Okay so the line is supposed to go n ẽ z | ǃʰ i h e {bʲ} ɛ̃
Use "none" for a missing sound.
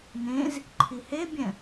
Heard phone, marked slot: bʲ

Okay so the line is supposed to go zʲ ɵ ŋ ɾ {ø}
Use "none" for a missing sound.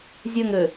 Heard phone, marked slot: ø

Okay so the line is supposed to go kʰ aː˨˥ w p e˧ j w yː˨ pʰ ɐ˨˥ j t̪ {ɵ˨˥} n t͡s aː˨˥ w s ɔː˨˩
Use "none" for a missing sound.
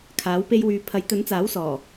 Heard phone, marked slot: ɵ˨˥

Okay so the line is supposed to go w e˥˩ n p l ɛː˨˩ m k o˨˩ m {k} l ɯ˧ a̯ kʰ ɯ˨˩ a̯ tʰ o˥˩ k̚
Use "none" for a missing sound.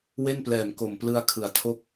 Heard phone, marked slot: p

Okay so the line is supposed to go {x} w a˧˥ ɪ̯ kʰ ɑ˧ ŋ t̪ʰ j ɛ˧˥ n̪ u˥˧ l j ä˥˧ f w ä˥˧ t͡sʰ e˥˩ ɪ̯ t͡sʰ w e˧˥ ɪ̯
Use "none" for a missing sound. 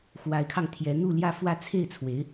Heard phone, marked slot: x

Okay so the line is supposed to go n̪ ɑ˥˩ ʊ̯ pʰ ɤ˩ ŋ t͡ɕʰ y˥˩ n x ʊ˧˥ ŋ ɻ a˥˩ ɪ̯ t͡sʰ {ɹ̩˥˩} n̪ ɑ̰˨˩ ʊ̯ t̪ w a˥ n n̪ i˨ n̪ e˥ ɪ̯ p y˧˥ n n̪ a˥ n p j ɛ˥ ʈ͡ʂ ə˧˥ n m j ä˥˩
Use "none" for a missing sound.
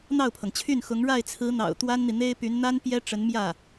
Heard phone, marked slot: ɹ̩˧˥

